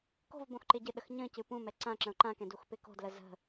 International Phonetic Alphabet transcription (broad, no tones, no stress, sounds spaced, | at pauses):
k o̤ v b õ x ǃ ɪ ɟ ɨ ɗ ə x ɲ ə̃ c ɨ p ũ m ɛ ǀ ã ǁ ə̃ ʊ̯ ǃ ã k ɛ̃ d u x p ɪ k o̤ d l ə z ə̤